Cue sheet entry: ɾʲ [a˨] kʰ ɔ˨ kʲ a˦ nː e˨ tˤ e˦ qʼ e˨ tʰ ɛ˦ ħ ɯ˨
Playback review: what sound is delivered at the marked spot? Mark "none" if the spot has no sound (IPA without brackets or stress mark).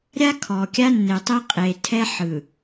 a˦